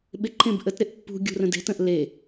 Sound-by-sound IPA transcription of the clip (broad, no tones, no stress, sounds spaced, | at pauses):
ɓ ɪ ǃʰ ẽ b ʔ ə t ɾ ɪ ʔ pː ṳ ɡʲ ṳ r ə̃ d e̤ t ə̃ ʔ l e